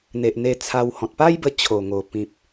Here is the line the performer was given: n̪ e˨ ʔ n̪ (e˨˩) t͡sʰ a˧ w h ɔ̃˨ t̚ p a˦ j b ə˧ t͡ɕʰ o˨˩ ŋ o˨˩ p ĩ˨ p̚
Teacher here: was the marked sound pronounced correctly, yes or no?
no